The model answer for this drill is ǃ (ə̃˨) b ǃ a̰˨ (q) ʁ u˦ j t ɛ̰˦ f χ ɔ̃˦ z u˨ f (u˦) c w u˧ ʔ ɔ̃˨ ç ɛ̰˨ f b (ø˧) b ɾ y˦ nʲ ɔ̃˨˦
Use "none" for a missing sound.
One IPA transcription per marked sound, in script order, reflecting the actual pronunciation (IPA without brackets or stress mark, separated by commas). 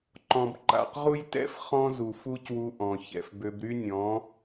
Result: ɔ̃˨, q, u˦, ø˧